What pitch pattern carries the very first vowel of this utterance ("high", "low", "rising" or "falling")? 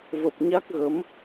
low